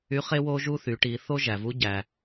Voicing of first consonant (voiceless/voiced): voiceless